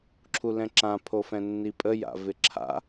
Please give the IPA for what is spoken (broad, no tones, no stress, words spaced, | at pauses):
ǁʰulɛ̃ǁã pʰofɛ̃nːipʼə ja̰vɪǁʰa̰